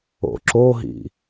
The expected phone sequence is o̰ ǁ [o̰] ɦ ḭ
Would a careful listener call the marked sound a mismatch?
yes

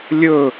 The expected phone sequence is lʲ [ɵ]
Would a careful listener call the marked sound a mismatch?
no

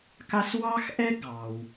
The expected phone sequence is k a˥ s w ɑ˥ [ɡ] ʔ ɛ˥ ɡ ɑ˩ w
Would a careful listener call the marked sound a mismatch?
yes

